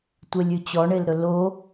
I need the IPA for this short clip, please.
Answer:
tʷelʲʉt͡ɕɔ ɳelɾɵlo

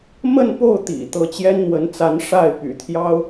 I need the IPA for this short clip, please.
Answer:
mə˥˧npo˥˩ʊ̯t̪ḭ˨˩ t̪ɤ˧˥t͡ɕjɛ˥nn̪wə˧˥nt͡sa˧˥n ʂa˥˩ɪ̯py̰˨˩t̪ʰjɑ˥ʊ̯

